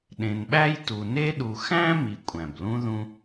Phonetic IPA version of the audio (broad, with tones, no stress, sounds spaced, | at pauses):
ɗ ẽ˨ n ɓ æ˥ j t u˨ n e˦ ɗ u˨ x æ̃˥ m i˨ kʷʼ æ̃˩ b l ũ˦ ð ũ˦